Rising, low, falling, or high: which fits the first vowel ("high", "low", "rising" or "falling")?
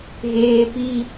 high